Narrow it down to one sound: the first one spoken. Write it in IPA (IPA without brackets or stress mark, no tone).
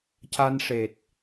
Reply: c